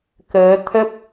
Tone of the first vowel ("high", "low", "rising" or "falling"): rising